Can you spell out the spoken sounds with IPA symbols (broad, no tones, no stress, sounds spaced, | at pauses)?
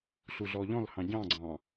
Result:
ɬ u ɮ ɔ ʎ ɔ̃ l h ɑ̃ ɟ ɑ̃ ɡ͡ǀ ɑ̃